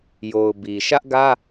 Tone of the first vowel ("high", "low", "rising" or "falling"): low